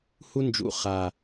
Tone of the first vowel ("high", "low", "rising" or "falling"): high